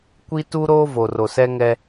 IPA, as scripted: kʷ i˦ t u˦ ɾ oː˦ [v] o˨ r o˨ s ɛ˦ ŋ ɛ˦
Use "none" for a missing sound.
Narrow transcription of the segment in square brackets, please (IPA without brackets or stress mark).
v